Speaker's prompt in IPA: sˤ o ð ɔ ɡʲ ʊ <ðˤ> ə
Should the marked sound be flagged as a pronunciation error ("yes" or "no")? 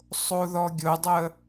yes